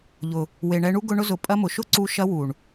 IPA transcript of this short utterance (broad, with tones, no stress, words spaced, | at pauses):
ʎʊ˨ | we˨ɳɛ˧ɳu˦ ɡʊ˧ ɳʊ˧zʊ˨ pʼɐ˧mʊ˨ ʃʊ˦ǀu˧ ʃɐ˧wu˨ɳ